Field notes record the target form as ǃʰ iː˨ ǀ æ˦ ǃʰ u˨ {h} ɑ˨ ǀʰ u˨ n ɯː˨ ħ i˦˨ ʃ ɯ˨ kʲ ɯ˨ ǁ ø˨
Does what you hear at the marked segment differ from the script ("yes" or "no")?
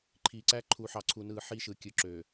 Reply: yes